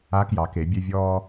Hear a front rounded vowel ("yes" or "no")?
yes